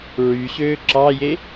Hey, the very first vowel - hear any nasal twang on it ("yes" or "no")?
no